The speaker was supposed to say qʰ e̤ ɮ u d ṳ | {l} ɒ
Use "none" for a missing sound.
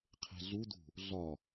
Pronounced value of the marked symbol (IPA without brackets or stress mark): ɮ